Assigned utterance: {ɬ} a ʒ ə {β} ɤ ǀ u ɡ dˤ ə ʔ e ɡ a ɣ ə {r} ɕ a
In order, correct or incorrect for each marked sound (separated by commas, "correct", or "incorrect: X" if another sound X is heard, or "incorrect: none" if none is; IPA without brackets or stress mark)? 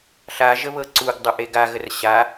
correct, correct, correct